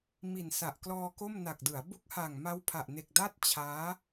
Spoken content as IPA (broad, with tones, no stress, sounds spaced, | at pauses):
m i˨˩ n s a˨˩ ʔ k l ɔː˧ k o˥˩ m n a˨˩ k̚ d ɯ˩˦ a̯ b u˦˥ k̚ h a˨˩ ŋ m a˦˥ w pʰ a˨˩ ʔ n e˨˩ k̚ d a˥˩ t̚ t͡ɕʰ aː˦˥